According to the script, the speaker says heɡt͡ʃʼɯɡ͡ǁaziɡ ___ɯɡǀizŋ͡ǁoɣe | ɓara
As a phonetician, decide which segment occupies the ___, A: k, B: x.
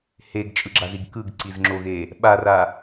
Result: A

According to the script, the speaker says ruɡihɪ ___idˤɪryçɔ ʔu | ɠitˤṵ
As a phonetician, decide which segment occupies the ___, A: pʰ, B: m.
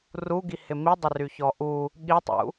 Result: B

